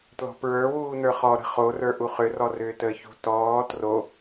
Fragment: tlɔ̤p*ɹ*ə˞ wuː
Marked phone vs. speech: correct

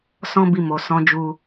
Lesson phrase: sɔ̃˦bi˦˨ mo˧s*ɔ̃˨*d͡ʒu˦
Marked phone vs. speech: incorrect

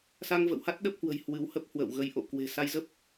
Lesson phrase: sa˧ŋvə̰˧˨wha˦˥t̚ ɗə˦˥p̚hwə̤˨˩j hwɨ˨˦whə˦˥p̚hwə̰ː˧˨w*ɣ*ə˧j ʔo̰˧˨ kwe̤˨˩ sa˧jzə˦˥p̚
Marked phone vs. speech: correct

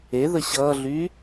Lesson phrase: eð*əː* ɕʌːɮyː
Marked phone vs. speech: incorrect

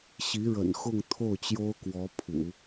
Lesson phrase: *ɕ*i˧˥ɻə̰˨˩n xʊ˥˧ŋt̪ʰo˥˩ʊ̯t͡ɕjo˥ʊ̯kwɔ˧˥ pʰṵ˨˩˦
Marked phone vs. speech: correct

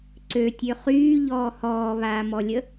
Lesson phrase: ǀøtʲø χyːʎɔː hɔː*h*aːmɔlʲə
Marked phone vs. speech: incorrect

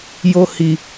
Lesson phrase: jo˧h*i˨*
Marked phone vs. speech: correct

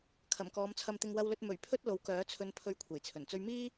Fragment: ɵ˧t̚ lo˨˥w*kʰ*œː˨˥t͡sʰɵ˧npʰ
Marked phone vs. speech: incorrect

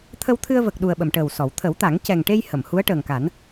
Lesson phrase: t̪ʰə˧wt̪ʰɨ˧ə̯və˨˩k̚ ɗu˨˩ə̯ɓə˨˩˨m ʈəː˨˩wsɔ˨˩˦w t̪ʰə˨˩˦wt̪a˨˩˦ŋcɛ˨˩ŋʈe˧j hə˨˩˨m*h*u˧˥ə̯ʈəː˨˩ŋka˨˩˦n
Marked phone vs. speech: correct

